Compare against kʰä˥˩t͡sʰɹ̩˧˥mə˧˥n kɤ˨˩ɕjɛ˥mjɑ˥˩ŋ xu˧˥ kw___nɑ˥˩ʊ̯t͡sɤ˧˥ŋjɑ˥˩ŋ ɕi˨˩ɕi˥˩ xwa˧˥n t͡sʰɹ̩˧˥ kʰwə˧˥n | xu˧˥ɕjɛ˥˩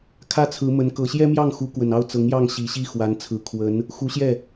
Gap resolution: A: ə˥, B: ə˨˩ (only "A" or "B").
B